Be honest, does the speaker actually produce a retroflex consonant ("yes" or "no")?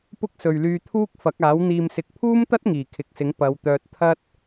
no